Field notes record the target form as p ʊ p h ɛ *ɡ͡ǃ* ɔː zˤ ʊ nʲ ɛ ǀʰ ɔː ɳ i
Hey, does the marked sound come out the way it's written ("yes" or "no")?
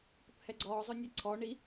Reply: no